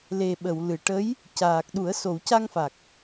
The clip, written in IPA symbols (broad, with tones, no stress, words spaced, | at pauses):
le˨˩ɓə˨˩˨wlɨ˨˩ ʈə˧˥j | caː˨˩k̚ɗu˨˩˦ə̯ so˨˩˨wca˧ŋfa˨˩k̚